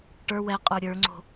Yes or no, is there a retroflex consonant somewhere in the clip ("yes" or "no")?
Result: yes